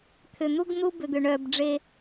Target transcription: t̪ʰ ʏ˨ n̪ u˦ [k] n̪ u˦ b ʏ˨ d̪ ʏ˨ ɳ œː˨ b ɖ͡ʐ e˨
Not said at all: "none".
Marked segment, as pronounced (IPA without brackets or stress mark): ɡ